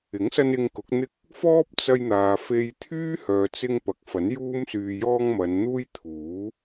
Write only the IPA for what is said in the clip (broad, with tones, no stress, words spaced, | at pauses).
ɪ˨˥ŋsɐ˧n ɪ˧ŋkʊ˨˥k̚n̪ɪ˥k̚ | fɔː˥p̚t͡sɐ˧jn̪aː˨ fe˧jt̪ʰyː˥ hœː˨t͡sɪ˧ŋ pɐ˨k̚fɐ˨˥n juː˧msyː˨jɔː˧ŋ mɐ˨˧nn̪uː˥j t̪ʰuː˨˥